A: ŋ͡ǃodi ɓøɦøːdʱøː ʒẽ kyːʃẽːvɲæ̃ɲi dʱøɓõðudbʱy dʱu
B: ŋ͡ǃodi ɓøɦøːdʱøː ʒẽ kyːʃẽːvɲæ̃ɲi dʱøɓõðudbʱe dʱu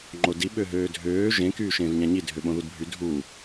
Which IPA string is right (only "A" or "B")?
A